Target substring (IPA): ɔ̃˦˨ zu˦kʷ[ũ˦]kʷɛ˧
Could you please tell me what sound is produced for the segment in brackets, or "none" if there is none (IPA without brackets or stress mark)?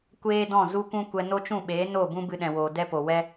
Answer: ũ˦